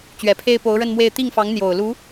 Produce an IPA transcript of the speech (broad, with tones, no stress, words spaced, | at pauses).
t͡ɕɥɛ˨˩pʰe˥ɪ̯ po˧˥ʊ̯ɻə˥˧nmwe˥˧ɪ̯ t̪i˥˩ŋfɑ˧˥ŋ n̪jo˨˩ʊ̯lu˧˥